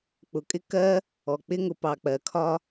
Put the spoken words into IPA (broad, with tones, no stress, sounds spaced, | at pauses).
k͡p ʊ˩ kʼ ɪ˥ k ɜ˥ | ɔ˩ k͡p ɪ˥ ŋ ʊ˩ p ɑ˩ k͡p ɜ˩ kʰ ɒ˥